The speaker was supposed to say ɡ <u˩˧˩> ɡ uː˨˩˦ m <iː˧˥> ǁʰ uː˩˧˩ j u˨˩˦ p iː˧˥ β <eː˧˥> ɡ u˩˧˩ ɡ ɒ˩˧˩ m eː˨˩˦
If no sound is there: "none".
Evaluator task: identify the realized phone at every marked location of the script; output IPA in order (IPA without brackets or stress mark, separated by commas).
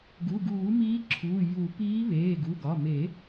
u˩˧˩, iː˧˥, eː˩˧˩